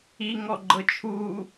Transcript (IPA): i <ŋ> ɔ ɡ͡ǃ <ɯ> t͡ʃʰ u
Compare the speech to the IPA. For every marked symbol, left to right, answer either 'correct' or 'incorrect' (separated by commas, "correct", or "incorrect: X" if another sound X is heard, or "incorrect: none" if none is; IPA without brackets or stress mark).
correct, incorrect: ɤ